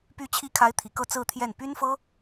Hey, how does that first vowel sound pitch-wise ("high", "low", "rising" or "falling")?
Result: rising